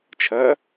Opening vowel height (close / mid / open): open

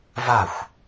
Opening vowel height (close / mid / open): open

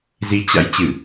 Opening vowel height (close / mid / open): close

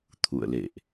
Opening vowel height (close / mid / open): close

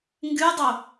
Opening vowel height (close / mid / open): close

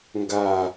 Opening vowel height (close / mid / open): open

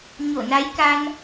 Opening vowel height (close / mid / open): mid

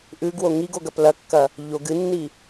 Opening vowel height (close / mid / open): close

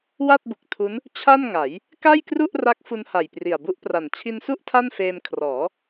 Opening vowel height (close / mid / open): open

